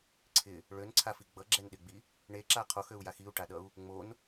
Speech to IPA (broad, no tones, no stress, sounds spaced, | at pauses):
ǀʰ ɪ | ɭ ø n ǀʰ a f i ɡ͡b ʌ ɡ͡ǁ ɛ n ɗ ɪ ɡ͡b i | ɳ e ǁ a qʰ o x ø u̯ j a x i u̯ ʈ a ɗ ʌ u̯ | ŋ͡m o n